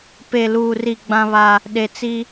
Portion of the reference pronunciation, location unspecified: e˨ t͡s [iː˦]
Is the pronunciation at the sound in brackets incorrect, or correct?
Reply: incorrect: i˦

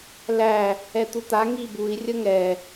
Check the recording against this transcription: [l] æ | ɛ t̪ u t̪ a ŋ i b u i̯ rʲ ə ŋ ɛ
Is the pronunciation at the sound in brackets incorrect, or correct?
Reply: correct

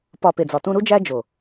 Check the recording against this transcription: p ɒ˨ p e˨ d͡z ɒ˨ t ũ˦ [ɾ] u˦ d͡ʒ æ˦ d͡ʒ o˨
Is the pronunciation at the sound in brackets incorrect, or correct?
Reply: correct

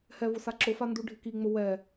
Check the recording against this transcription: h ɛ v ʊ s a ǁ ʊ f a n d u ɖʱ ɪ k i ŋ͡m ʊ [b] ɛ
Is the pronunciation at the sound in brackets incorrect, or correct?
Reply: incorrect: w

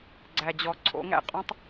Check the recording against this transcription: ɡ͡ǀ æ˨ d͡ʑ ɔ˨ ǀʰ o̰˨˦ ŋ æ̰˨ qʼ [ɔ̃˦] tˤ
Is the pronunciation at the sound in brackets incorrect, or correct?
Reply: correct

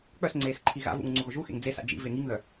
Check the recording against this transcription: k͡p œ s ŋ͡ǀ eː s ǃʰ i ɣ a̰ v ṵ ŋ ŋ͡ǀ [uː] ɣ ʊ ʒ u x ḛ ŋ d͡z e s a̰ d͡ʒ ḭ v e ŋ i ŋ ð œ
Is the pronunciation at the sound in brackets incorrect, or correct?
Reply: incorrect: u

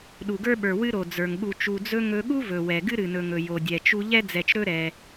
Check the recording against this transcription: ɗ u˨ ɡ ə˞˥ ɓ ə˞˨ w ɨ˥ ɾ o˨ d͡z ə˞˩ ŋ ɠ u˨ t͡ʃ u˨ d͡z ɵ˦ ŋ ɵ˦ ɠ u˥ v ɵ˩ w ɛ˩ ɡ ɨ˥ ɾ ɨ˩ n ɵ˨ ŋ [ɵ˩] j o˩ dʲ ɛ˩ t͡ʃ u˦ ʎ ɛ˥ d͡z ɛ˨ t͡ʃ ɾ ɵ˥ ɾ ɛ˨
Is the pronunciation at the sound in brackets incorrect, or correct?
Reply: correct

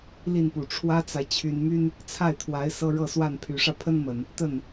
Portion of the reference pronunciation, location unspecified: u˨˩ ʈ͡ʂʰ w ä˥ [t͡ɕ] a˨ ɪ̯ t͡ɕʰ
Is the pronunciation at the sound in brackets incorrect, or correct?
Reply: incorrect: t͡s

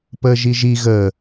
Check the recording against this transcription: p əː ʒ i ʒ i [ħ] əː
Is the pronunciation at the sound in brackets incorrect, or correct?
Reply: incorrect: ɣ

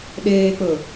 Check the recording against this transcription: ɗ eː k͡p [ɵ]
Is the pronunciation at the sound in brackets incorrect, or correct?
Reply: correct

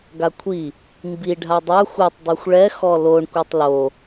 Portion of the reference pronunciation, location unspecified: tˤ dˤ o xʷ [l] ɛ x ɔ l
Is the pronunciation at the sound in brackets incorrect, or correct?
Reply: incorrect: ɭ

